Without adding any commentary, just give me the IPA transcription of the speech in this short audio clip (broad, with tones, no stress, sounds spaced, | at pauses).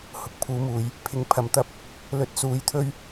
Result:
h ʊ˨ k̚ pʰ uː˨˥ m uː˨˧ j | pʰ ɪ˨˥ ŋ pʰ ɐ˨ m t̪ ɐ˥ p̚ | l ɵ˧ t̚ s uː˨˥ j t̪ʰ ɵ˥ ɥ